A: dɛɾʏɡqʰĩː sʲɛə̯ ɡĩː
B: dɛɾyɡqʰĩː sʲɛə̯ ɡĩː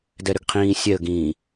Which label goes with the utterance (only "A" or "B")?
A